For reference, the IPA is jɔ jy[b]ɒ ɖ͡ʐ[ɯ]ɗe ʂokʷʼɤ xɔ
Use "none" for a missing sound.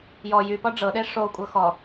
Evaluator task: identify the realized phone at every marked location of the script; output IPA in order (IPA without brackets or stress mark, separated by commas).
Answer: p, ɤ